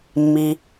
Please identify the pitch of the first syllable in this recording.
low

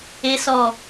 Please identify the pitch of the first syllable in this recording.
low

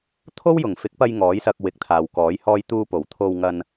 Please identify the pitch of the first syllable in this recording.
high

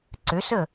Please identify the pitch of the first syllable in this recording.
rising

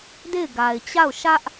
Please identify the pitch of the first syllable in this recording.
falling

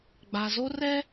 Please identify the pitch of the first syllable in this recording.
low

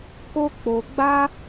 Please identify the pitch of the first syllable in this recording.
high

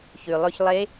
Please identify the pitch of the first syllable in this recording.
low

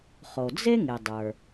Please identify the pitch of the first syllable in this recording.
low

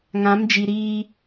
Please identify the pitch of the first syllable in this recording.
rising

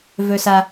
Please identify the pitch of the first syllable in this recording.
low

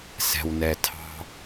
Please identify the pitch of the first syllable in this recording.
low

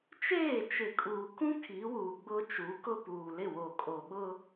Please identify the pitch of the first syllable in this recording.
falling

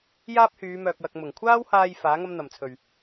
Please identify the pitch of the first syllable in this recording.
high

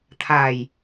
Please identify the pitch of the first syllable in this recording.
low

